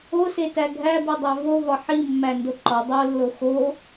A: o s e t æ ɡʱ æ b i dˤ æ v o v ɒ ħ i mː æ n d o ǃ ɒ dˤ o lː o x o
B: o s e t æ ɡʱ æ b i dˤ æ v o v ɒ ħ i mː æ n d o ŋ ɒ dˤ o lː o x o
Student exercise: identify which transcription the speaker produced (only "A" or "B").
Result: A